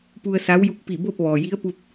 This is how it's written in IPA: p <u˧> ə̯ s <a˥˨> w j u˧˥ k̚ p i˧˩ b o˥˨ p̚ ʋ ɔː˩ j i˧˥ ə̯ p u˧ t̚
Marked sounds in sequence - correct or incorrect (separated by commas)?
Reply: correct, incorrect